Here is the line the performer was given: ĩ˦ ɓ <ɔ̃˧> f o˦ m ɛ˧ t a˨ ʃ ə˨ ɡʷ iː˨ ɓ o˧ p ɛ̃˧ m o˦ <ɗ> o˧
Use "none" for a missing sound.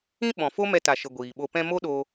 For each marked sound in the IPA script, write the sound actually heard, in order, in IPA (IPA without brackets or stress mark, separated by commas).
ɔ̃˨, ɗ